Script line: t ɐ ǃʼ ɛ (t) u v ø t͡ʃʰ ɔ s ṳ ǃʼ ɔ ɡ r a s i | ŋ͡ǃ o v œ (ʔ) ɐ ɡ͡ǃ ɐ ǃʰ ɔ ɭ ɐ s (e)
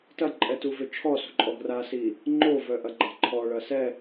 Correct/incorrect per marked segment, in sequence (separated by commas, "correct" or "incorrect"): correct, correct, incorrect